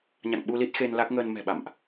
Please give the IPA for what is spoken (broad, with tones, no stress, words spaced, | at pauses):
ɲa̰˧˨ŋɓu˧li˦˥t̚xe˧n la˦˥k̚ŋəː˧n mɛ̤˨˩ɓa̰˧˨mʔ